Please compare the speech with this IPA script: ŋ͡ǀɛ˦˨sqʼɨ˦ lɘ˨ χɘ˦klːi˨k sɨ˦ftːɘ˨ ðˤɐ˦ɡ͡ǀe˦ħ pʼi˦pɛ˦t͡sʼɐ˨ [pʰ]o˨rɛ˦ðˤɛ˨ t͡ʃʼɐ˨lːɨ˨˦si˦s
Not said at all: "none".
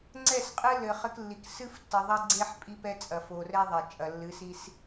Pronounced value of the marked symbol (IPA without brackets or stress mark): f